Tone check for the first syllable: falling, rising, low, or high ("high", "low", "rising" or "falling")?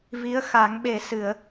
rising